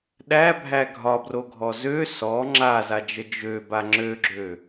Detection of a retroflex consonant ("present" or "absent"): absent